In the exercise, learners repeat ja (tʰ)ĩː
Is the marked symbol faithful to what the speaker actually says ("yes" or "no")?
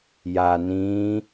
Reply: no